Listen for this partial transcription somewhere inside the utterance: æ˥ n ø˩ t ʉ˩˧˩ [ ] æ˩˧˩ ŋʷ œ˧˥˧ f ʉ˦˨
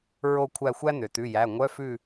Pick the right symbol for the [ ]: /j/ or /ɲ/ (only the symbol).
j